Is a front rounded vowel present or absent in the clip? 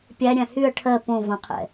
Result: present